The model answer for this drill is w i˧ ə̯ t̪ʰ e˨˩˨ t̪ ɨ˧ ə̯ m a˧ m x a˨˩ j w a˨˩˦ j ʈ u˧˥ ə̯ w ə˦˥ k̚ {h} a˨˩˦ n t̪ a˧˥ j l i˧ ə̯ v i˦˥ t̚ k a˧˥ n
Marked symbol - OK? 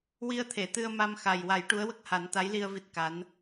yes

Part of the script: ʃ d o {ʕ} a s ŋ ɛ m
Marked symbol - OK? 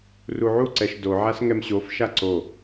yes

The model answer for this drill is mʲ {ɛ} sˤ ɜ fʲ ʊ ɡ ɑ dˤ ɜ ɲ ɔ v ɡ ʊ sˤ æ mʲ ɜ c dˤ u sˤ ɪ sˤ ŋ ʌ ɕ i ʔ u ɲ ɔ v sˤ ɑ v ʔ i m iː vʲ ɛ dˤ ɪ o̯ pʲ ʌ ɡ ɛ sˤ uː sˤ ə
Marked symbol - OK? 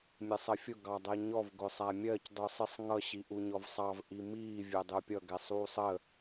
yes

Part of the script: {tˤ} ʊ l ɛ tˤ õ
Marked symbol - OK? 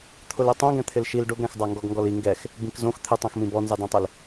no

